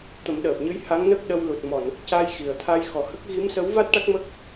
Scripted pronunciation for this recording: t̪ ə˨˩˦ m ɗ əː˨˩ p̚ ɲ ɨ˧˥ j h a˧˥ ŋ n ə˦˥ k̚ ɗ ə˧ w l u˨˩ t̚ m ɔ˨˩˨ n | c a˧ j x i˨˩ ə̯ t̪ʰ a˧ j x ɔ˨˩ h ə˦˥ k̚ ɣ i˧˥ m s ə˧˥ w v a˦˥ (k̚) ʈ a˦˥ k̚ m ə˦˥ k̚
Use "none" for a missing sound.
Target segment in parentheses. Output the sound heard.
t̚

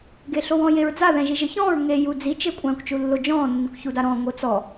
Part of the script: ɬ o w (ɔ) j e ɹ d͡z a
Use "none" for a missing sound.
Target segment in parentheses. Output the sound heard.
ɔ̃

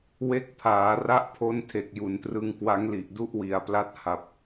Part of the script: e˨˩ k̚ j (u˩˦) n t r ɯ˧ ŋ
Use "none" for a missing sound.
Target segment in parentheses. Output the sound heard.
u˩˦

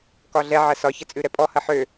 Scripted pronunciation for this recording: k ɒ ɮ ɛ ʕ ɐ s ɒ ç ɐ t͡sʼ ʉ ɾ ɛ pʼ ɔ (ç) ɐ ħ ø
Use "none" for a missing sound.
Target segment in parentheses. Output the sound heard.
h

